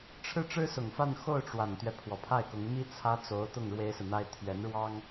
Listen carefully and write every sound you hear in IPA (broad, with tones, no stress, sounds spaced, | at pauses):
ʈ͡ʂʰ ɻ̩˥˩ ʈ͡ʂ ɻ̩˥ s ʊ˨˩ ŋ f a˥˧ n x o˥˩ ʊ̯ ʈ͡ʂ w a˨˩ n t̪ ɥ ɛ˦ pʰ w ɔ˨˩ pʰ a˥˩ ɪ̯ k ʊ˧˥ ŋ m i˥ t͡sʰ ä˥ t͡s o˧˥ ʊ̯ t̪ ʊ˥˩ ŋ ɻ w e˥ ɪ̯ s ɹ̩˨ n̪ a˥ ɪ̯ t̪ʰ ɥ ɛ˧˥ n ɻ w ɑ˥ ŋ